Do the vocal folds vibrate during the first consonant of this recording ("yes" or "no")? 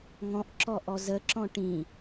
yes